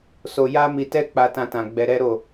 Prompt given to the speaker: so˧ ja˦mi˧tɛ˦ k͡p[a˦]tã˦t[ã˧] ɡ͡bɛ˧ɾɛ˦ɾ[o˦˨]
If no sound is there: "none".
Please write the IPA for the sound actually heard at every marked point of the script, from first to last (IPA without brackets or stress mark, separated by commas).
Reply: a˦, ã˧, o˦˨